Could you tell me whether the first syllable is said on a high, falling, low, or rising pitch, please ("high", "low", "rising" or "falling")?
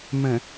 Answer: low